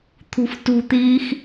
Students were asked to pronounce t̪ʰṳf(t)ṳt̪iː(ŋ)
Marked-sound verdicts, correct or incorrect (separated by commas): correct, incorrect